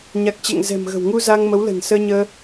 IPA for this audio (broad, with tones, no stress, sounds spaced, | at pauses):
ɲ a˨˩ k̚ t͡ɕ ɛ̰˧˨ ŋ z ɛ̤˨˩ m ɣ ə̤˨˩ w ŋ u˧ z a˧ ŋ m ə˨˦ w l ə̤˨˩ n s əː˧ ɲ əː˧